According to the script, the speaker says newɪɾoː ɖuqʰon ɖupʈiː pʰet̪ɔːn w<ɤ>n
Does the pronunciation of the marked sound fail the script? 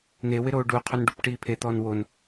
yes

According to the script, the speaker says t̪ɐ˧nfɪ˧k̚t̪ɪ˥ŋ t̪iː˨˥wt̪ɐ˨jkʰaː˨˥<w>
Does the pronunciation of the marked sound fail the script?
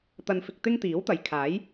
yes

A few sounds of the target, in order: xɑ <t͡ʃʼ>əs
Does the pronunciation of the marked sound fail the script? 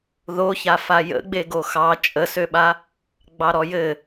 no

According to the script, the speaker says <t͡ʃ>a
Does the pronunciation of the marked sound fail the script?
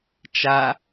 no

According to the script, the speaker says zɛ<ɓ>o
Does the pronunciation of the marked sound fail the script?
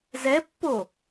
yes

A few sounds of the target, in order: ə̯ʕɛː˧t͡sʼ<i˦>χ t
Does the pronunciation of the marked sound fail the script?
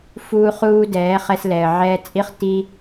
no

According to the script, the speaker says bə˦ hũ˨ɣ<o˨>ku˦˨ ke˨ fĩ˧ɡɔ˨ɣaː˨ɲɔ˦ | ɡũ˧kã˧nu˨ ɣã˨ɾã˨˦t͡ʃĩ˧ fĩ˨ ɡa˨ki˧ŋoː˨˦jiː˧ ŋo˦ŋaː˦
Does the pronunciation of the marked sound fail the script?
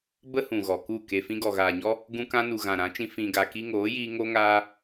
yes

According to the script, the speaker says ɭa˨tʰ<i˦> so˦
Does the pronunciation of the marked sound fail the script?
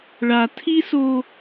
no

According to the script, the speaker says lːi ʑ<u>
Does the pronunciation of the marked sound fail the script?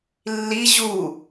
no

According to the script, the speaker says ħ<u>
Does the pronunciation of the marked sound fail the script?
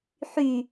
yes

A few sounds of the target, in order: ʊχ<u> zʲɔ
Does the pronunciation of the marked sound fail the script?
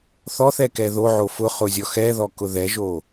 yes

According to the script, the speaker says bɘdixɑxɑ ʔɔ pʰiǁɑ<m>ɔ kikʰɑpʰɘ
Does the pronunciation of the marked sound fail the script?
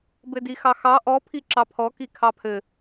yes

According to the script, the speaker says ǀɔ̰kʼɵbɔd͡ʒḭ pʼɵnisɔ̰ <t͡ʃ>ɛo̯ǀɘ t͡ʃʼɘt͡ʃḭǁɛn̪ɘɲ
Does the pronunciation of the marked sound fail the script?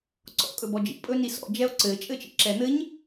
yes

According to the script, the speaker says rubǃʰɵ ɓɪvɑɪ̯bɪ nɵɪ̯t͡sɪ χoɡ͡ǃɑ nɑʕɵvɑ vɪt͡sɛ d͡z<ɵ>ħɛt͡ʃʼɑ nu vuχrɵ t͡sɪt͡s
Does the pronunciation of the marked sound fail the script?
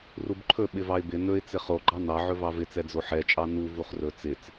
yes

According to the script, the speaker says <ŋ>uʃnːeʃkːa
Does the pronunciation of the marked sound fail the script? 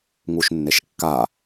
no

